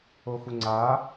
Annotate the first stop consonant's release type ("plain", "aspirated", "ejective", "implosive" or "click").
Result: click